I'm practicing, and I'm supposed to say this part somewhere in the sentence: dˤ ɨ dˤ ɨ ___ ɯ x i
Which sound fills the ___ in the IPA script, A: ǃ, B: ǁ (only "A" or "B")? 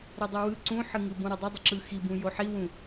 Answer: B